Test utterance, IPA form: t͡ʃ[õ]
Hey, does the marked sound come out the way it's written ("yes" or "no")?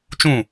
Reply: no